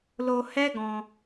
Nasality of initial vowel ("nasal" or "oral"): oral